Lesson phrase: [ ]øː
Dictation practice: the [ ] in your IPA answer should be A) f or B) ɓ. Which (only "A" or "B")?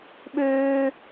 B